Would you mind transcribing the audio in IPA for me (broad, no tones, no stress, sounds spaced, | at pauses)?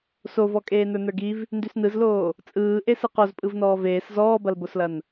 s o v ɔ kʼ eː n ə˞ n ə˞ ɡ i v | n d ʉ s n ɯ z l oː | t͡sʼ ɯː ʔ e s ɯ q o z pʼ ɯ v n ɔː v eː s z ɔː b ɐ l b o s l ɐ n